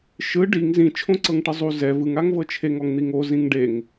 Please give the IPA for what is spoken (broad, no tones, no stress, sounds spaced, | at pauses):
ʃ ɯ ɖ i ŋ z ĩ t͡ʃʰ õ ǀ ɤ ŋ ʈ ɯ zˤ u z ɛ v ɯ ŋ a ŋ v ɤ t͡ʃʰ e ŋ ɔ ŋ n̪ i ŋ o z ĩ ŋ ɖ e ŋ